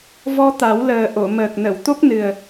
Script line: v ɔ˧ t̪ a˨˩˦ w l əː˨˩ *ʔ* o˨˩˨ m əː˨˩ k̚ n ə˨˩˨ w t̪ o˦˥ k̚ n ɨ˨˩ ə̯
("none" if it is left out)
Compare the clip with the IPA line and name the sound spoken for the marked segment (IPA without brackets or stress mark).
ʔ